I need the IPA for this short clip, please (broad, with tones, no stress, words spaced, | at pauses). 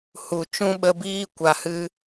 hu˨ t͡ʃũ˦ɓə˧biː˦ kʷa˨hɨ˧